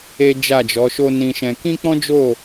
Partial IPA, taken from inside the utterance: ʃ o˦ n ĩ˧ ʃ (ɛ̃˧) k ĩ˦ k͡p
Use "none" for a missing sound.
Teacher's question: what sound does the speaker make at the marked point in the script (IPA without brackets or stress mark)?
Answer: ɛ̃˧